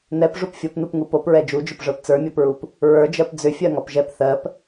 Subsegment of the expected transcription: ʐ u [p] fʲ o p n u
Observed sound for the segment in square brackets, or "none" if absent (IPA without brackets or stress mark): p